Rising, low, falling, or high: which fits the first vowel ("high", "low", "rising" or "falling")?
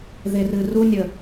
low